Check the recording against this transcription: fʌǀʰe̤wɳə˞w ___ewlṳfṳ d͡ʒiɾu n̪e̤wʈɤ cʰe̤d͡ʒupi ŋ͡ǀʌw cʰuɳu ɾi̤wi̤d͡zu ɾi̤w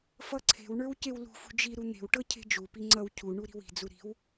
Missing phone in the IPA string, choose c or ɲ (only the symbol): c